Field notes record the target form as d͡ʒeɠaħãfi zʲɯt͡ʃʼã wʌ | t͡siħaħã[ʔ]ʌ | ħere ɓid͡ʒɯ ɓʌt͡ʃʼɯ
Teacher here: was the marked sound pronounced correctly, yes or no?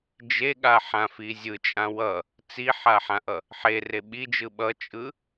yes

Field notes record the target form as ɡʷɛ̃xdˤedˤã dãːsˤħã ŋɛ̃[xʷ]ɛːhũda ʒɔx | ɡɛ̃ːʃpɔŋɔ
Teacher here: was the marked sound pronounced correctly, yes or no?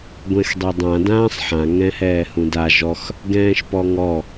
no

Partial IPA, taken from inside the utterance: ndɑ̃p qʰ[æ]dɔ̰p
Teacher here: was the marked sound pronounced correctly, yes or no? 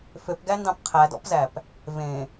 yes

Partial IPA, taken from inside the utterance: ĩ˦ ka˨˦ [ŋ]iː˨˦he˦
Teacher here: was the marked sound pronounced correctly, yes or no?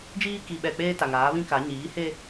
no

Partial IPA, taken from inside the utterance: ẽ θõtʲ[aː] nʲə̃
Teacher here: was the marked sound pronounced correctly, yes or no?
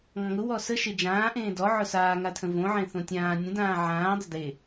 no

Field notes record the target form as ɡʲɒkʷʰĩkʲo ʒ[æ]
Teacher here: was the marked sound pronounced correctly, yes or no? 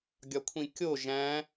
no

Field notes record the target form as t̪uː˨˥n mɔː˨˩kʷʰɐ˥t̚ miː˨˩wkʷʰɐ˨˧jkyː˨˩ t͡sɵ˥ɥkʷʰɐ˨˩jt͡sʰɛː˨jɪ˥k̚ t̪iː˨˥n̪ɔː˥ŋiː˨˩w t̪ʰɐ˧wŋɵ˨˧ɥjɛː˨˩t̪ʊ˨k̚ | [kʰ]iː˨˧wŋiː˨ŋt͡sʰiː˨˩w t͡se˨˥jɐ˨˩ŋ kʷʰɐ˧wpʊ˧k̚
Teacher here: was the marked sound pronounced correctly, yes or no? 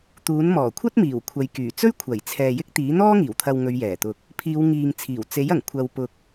no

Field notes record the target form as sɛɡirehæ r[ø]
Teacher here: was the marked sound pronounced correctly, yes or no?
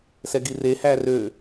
yes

